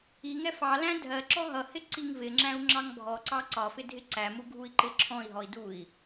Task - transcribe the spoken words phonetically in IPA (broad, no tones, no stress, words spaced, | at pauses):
iŋɛ fɑlæ̃ dʱɜǁɔ ɦʌhɪ ǀiŋvɪŋ͡ǁæ̃u̯ ŋ͡ǁɑŋbʱɔǀɑ ǀɒfɪ dʱɪǀæmu ɡʱui̯ǃɪǁʰɔ̃i̯ɦɔi̯ dui̯